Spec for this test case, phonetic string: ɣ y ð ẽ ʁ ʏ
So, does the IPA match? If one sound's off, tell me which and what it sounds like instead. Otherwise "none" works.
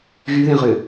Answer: none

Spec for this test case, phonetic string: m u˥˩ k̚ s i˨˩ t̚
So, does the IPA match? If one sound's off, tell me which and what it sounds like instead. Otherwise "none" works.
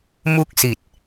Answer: none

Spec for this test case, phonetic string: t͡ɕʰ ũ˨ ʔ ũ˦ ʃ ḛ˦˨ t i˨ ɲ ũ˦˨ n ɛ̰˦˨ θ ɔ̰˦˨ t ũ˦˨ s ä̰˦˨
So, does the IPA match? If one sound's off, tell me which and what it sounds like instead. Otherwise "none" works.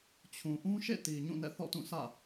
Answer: none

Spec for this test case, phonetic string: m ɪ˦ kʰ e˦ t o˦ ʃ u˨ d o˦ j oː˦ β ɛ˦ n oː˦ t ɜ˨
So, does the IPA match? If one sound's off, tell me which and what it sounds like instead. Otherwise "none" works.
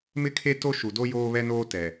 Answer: ɜ˨ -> ɛ˨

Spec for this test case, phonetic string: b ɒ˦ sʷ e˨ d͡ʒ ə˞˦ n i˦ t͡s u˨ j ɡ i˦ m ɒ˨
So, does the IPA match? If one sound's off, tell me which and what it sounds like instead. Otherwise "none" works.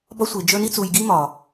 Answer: none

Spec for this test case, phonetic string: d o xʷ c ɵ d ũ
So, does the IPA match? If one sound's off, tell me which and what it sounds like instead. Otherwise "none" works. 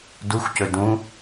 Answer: o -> u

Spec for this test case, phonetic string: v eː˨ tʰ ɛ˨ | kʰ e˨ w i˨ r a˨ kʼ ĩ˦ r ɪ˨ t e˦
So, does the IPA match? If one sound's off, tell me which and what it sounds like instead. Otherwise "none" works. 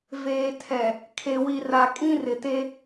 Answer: none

